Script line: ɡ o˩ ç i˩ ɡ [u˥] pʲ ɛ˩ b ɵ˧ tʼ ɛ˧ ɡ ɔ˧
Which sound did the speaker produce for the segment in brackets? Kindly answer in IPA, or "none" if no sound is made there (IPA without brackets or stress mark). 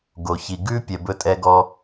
ʉ˥